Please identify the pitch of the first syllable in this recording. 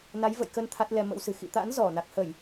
rising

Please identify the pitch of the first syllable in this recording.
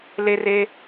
high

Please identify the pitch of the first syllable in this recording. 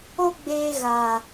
high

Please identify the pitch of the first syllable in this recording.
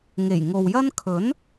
low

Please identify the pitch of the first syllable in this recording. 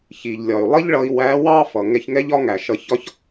low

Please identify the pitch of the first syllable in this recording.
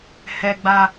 high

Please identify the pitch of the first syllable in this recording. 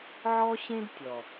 high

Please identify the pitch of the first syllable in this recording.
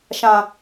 low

